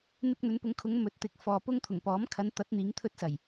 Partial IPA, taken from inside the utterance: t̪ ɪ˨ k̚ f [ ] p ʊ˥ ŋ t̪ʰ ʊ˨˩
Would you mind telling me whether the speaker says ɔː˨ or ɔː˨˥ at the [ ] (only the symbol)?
ɔː˨